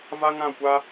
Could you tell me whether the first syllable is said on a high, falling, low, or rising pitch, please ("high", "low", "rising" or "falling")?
high